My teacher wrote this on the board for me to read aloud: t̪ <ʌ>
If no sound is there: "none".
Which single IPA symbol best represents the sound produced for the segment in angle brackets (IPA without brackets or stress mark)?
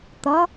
ʌ